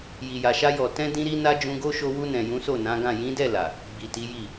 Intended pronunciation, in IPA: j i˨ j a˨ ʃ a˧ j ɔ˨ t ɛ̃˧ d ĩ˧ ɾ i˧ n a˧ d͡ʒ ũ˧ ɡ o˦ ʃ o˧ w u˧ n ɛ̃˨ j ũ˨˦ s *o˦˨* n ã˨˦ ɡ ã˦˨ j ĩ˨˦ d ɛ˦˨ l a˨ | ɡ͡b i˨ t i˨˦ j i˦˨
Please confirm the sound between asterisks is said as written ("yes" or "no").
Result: yes